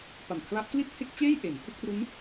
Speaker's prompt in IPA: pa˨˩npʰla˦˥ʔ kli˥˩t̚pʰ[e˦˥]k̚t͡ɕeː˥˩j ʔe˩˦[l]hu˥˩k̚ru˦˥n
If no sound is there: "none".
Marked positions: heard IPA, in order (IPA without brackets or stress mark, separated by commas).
e˦˥, n